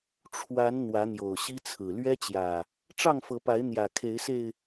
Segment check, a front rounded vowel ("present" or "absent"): absent